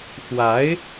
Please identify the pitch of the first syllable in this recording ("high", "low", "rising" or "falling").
rising